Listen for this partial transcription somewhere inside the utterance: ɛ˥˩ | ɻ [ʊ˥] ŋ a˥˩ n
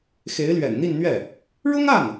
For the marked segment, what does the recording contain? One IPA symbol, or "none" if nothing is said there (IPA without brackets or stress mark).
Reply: ʊ˥